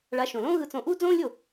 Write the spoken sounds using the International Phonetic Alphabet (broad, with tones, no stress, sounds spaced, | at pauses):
ɭ a˨˥ ʃ õ˩ l õː˥ ɣ ɯ˧ t͡s õ˧ ʔ uː˥ d͡z õː˥ lʲ o˥˩